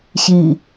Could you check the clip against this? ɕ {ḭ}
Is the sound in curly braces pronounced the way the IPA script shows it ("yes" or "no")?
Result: no